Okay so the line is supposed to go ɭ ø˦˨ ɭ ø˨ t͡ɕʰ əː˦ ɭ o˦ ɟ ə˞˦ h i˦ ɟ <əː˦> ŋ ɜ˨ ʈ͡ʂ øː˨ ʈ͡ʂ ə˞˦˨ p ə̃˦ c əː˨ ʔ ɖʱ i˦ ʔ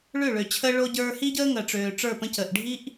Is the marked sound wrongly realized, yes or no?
no